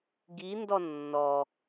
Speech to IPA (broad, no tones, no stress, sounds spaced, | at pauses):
ɡ i n d ɔ nː ɔ